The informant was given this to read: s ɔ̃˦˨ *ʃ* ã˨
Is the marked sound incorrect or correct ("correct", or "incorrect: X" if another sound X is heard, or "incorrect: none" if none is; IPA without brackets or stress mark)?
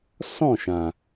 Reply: correct